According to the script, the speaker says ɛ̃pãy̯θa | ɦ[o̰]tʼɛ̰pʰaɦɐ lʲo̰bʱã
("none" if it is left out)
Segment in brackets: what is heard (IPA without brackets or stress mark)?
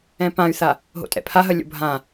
o̰